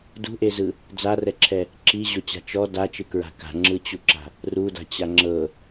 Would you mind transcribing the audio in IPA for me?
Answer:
dṳʔezɯ | d͡zarɛǁʰɛ | ǁiʑot͡ɕa̤ t͡ʃɔ dat͡ʃɯkɹa̤ ka̤ŋ͡ǁɯt͡ɕuǁa̤ | ruda̤t͡ɕa ŋ͡ǁɤ

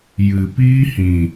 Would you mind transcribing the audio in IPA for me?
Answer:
jɨ˨ piː˦hĩ˨

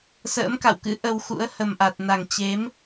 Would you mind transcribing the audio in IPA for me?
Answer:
sə̰ː˧˥mka̰˧˨wkɨ̰˧˥ ʔə˧wxṵ˧˥ə̯ hə˨˩mʔa˨˩t̚na˨˩ŋ t͡ɕe˨˦m

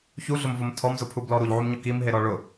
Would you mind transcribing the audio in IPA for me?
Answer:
çuɮʊmvom tʰɔmzʊpʰublɔ ɾuʎʕumɲʊ kimɦeɾɔ ɭʊ

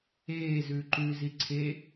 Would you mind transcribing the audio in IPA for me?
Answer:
eː zʉːǃʉ ziǀʰe

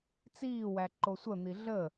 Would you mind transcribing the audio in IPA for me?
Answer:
t͡siːwæ ǃosʷən̪i ɮəː

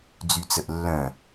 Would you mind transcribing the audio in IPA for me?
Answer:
d͡zyt͡səʔlːœ̃

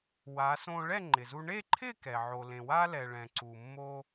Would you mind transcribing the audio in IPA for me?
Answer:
wa˩˧sõ˧ ɭɛ˥˧ŋ͡ǃɪ˩zu˧ ɳe˥˧ǃʰɪ˥˧kɛ˩ ʕo˩lẽ˩wa˧lɛ˩ ɭɛ̃˩ǀu˩mːo˧

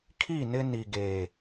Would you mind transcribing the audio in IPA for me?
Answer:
kʰi˦˨ nɪ˦ ni˨ ɡe˨

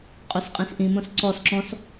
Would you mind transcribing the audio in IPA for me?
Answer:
qʼosqʼĩsʔĩmõs ǀɔs ǁɔ̃s

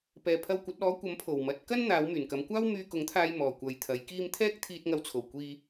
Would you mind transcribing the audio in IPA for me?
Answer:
pɛː˨pʰɐ˧wkʷɐ˨˥t̚ ɔː˨˥ kʷɐ˨˥mpʰo˨˩w mɐ˨˥t̚kɐ˥n n̪aː˨˧wmyː˨˩nkɐ˨˧mkʷaː˥w myː˧kʊ˨˥ŋt̪ʰaː˧j mɔː˨˩kʷɐ˨jt̪ʰɐ˨˥jkiː˥m t̪ʰɛː˥k̚ t̪ʰiː˧t̚ŋɐ˧wt͡sʰo˨˩w kʷiː˧

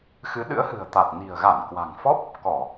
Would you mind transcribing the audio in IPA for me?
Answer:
xɨ˨˦ɗɨ̰˧˥ə̯hɨ̤˨˩ə̯t̪a˨˩t̚ ni̤˨˩ə̯ɣa˧˩nkwa̤˨˩ŋfɔ˦˥p̚ | kɔ˧˩˨

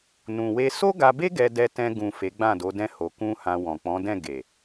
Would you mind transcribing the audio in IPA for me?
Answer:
nũ˨we˧ so˦ɡa˧be˦ ɡɛ˧dɛ˧tɛ̃˧ ɡũ˨ fe˨˦ɡ͡bã˦˨do˨˦dɛ̃˦ ho˧ kũ˦hã˧ wɔ̃˨k͡pɔ̃˨˦dɛ̃˦˨ ɡe˨

